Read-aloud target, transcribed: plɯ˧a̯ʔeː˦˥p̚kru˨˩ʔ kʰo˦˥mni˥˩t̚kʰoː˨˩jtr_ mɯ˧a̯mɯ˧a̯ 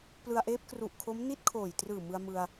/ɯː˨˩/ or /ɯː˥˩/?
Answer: ɯː˨˩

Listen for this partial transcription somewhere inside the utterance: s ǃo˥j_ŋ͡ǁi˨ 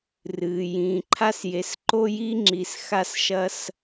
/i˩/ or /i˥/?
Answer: i˥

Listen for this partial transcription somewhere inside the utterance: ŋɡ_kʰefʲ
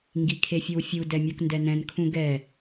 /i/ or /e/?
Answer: i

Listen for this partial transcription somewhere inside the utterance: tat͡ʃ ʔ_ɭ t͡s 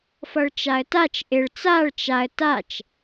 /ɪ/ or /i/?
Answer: ɪ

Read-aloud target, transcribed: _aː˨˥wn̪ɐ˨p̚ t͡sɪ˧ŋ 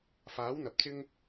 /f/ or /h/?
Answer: f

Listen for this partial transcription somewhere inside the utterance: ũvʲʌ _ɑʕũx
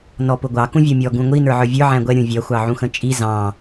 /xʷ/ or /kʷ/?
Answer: xʷ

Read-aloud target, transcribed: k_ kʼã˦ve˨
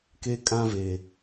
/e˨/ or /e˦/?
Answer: e˦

